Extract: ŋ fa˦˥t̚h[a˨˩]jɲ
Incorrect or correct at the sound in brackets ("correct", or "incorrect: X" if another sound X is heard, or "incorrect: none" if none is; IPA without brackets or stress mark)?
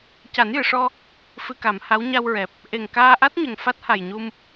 correct